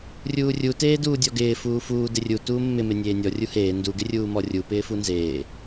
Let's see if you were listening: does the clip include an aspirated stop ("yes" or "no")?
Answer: no